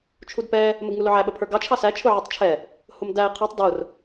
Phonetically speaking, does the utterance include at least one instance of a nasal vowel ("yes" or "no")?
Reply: no